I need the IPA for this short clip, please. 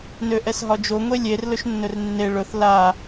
nøʔɛsɦɒd͡ʒo ŋʷelʲer lɵʃnːɵrnːe ɭɵθ la

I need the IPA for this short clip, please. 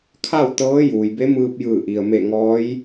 kʰa˥˨wt̪ɤː˧˥juː˩jbe˧˥ mɯː˧p̚jɯː˧˩ʔi˩ə̯me˧˩ ŋɔː˧˥j

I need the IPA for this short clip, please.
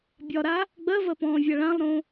bʲɒɾa | ɡ͡bɜvɜpɔ̃ːvʲa ɭãlˠɾõ

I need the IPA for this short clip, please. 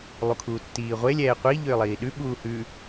lˠukʰuːtːiːʁʷe lʲɛːqʷi ʎʏːlˠiːɗʉ ɓuːhʉ

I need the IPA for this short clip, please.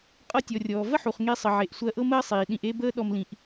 qʼɤ˦tʲɔ˨rʲɔː˨ və˦ħu˨χ ŋe˧sˤə˨ʕe˨ʔ sʷɜ˧ʔɤ˦ məː˦sˤiː˨ɗĩ˧ʔe˦ bəː˦ ɗɔ˧mlĩ˨ʔ

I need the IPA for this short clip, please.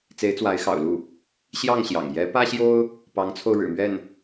t͡se˧˥ɪ̯t͡swa˧˥ɪ̯xɑ̰˨˩ʊ̯lu˥˩ | ɕjɑ˥˩ŋɕjɑ̰˨˩ŋ jɛ˧˥pä˥ɕjo˥ʊ̯ | pɑ˧˥ŋt͡sʰo˧ʊ̯ ɻɻ̩˨˩mɥɛ˥˩n

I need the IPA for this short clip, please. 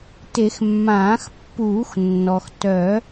te˨˩˦xmːãː˨˩˦xpːuː˨˩˦x nːɔ˩x tœ˨˩˦

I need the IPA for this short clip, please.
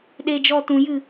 ɗe˧d͡ʒɔ˧ tũ˨jɨ˦˨

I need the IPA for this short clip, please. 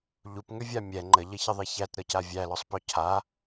ʎupŋʏvʲa mʲɛ ŋ͡ǃəʎəçəðˤi çætɾɤca vʲælɔsˤpɔ cʰa

